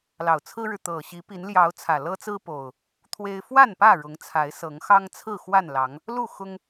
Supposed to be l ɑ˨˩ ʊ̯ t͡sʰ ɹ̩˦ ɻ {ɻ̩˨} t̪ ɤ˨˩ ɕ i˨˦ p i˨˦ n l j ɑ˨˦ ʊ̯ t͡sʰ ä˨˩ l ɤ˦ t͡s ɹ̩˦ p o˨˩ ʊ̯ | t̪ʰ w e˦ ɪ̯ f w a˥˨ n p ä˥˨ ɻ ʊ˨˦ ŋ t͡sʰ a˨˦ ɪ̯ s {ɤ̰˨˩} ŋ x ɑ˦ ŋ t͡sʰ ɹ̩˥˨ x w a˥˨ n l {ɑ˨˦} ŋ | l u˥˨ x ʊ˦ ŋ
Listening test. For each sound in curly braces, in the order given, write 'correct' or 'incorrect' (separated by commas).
correct, incorrect, correct